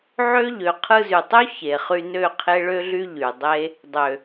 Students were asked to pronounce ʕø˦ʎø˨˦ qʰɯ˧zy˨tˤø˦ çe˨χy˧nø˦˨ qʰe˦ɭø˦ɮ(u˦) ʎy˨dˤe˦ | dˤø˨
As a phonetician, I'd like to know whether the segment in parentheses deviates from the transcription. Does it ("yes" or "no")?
yes